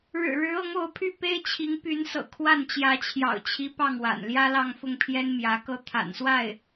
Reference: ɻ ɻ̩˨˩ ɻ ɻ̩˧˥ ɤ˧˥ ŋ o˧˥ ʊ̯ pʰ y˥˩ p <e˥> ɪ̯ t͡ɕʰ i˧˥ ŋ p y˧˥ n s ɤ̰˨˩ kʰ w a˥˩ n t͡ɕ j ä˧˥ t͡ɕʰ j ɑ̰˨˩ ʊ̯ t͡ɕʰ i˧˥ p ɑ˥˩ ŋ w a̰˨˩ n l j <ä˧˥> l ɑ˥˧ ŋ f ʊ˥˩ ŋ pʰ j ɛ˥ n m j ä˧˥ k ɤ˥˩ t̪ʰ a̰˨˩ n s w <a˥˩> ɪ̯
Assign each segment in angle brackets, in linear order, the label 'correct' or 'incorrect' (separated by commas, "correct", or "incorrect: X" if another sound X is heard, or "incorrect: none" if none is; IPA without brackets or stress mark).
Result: correct, incorrect: ä˥, correct